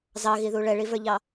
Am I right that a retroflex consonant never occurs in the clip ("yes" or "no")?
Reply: no